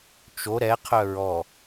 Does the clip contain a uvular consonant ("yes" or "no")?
yes